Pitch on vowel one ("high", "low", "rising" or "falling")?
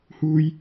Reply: high